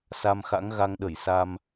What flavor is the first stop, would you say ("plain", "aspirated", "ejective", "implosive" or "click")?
implosive